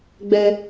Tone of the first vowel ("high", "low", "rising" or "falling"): high